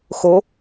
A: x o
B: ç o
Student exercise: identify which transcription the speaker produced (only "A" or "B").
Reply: A